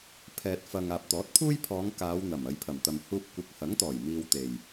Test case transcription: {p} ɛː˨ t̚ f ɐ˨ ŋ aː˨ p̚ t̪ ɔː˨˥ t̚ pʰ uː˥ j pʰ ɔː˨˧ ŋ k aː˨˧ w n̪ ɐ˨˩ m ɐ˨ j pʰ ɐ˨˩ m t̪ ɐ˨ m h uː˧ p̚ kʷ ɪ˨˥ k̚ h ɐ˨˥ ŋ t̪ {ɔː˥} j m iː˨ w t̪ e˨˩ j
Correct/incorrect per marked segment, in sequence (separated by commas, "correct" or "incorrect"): incorrect, incorrect